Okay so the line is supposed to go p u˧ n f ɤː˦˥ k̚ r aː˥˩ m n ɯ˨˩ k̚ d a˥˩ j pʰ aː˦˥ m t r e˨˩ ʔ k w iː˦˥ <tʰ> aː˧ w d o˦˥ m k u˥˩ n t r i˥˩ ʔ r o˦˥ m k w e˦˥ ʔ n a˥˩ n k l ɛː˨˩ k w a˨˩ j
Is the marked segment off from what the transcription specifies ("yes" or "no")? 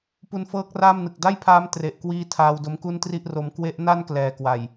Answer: no